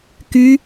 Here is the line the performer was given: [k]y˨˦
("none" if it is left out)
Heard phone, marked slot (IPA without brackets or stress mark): k